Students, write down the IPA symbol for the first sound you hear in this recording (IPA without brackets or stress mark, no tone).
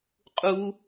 qʼ